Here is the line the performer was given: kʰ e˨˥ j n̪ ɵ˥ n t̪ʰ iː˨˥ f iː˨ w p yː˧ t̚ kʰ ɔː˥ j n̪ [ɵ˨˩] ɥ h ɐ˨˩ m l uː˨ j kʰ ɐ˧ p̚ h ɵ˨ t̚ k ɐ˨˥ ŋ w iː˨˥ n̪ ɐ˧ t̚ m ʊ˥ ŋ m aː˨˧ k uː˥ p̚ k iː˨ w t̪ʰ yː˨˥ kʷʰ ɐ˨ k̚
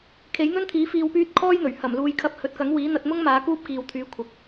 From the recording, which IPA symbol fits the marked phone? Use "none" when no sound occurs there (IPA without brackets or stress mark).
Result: ɵ˨˩